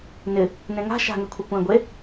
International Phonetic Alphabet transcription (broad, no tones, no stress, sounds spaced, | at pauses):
n ɪ | n ẽ ŋ a̤ ʃ a̤ ŋ e kʷʰ e kʷ ẽ ɡʷ e